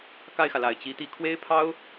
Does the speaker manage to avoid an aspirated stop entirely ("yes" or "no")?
no